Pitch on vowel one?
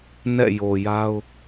falling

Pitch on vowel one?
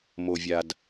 low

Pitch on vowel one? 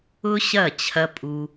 high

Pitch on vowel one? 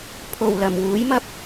low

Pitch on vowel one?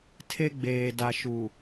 high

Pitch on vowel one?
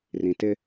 low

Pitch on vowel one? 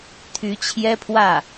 rising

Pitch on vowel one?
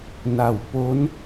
low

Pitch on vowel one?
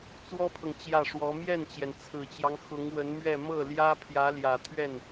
high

